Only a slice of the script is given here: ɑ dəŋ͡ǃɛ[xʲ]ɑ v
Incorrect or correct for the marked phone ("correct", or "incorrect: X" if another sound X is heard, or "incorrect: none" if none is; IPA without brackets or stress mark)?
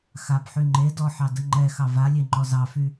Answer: incorrect: x